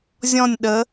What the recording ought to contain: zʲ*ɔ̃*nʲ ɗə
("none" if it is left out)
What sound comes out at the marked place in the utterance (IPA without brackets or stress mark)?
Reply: ɔ̃